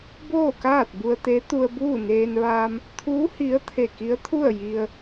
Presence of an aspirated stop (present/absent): present